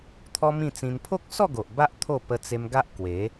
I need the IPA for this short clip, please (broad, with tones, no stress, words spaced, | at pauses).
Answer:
t̪ʰɔ˦mĩ˥˧t͡sĩ˧n pʰo˦k̚sɔ˥˧ ɡo˨ʔba˦ʔ t̪ʰo˥˧ pə˧t͡se˧mɡa˦ʔ kwe˨˦